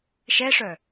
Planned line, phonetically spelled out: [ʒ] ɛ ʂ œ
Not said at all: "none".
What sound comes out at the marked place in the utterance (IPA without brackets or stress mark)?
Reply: ʃ